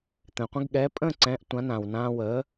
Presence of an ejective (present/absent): present